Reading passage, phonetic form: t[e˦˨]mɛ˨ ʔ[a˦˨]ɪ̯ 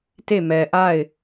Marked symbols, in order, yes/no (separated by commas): yes, yes